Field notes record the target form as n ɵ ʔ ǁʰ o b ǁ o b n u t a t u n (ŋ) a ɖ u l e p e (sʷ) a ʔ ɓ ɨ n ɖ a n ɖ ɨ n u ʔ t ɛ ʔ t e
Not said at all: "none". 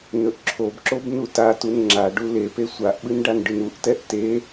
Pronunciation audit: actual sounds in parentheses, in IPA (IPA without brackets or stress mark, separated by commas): ŋ͡ǁ, sʷ